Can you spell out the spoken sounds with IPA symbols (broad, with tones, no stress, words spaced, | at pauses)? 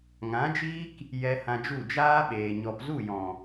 ŋã˨˦d͡ʒiː˦k | jɛ˧ hã˧d͡ʒu˦˨ d͡ʒaː˦ɓeː˨ ɲɔ˨pzu˦˨jɔ̃˨